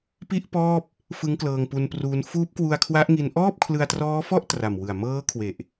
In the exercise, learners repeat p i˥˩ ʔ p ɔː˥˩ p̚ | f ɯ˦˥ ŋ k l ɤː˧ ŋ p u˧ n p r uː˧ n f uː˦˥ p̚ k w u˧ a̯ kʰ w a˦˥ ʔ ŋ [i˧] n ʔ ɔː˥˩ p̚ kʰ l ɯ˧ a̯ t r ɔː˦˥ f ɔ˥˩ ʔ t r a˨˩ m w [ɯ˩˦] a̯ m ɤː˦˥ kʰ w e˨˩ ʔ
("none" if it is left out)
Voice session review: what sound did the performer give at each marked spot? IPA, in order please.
i˧, ɯ˨˩

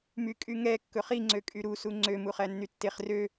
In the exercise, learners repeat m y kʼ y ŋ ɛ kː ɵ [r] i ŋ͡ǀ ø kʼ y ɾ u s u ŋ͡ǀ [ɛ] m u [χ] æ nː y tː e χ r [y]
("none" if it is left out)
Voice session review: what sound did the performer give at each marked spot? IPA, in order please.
χ, ø, χ, ø

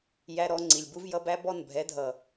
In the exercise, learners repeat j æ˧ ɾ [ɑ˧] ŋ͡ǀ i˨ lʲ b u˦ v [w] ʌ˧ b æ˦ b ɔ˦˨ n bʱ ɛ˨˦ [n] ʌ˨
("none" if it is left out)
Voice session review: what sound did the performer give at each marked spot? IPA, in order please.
ɔ˧, j, dʱ

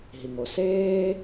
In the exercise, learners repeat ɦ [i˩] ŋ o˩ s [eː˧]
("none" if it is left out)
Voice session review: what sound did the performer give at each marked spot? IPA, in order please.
i˩, eː˧

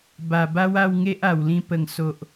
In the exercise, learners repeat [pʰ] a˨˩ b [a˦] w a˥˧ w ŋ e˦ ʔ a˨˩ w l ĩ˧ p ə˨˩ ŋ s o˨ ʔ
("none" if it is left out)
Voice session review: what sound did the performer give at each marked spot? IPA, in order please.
b, a˦

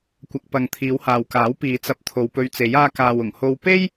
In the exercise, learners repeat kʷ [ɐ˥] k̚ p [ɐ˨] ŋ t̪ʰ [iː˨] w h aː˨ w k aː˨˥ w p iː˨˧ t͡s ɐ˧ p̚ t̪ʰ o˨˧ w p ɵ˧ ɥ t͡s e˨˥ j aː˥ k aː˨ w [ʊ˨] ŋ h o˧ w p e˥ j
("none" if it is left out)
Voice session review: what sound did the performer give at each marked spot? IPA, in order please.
ɐ˨, ɐ˨, iː˨˧, ʊ˨˩

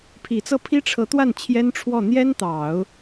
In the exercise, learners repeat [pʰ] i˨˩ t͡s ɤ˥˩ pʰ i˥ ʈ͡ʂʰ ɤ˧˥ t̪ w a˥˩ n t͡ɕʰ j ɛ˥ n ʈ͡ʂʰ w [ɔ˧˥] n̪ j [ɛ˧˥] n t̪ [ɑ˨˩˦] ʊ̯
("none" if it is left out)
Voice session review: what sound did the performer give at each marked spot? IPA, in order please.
pʰ, ɔ˥˩, ɛ˥, ɑ˨˩˦

